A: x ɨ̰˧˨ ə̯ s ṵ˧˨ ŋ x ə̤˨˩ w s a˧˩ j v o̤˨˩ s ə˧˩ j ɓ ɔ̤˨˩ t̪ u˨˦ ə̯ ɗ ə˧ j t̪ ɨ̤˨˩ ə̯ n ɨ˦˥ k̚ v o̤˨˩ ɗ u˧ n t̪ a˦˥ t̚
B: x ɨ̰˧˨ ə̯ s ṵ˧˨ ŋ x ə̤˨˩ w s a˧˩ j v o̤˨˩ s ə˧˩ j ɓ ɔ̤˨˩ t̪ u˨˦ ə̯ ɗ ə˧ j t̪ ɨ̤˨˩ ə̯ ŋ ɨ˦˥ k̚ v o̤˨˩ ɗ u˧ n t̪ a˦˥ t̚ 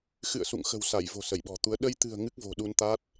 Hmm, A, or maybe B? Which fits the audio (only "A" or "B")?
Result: B